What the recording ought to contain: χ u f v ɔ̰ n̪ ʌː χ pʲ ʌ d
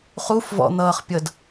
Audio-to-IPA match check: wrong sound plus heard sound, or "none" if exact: none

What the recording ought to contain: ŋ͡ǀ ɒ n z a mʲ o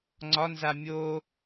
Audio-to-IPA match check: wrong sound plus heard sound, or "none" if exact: none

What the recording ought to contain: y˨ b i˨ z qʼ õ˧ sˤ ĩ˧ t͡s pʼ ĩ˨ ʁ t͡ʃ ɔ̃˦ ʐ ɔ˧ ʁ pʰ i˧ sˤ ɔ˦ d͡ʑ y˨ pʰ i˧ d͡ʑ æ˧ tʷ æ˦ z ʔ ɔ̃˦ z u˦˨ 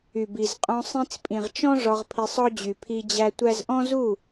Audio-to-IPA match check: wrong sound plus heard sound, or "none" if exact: none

